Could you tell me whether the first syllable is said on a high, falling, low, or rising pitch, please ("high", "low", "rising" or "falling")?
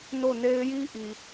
falling